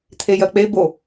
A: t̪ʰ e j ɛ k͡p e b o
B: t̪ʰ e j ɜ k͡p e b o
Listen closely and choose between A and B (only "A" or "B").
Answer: B